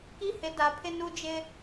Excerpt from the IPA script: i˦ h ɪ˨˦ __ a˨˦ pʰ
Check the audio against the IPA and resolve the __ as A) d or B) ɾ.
A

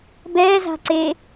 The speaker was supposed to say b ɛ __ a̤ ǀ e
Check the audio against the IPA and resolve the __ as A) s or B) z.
B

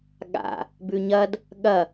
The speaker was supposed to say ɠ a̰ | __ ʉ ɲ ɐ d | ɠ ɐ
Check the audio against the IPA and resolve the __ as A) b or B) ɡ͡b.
A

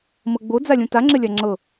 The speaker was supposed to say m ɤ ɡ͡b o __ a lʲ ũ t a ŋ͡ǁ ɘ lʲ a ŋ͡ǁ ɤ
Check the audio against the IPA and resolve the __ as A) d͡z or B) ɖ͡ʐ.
A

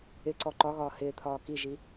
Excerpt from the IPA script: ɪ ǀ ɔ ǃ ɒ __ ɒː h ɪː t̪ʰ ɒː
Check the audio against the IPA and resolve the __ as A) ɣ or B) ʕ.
A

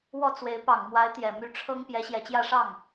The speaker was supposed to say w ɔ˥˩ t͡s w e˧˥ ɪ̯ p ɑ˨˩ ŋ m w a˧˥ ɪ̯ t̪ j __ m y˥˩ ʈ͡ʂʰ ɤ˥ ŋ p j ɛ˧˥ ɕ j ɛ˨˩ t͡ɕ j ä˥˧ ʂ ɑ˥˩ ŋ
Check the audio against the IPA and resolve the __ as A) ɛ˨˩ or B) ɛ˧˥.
A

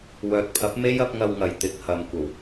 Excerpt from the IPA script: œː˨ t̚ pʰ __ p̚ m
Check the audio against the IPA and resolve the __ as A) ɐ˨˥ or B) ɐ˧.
A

